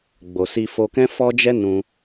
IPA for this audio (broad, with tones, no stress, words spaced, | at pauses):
ɡ͡bo˨si˧fo˧kɛ̃˦ fɔ˦d͡ʒɛ˦ nũ˧